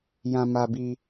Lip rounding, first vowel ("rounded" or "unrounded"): unrounded